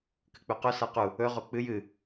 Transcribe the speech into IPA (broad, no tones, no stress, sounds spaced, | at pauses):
k ɨ k͡p ʉ q ɵ s a q u | ɵ ʁ o k͡p ɨ j ɨ